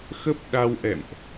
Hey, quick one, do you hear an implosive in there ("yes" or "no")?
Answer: yes